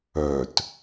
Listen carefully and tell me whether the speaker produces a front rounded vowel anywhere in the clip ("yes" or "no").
yes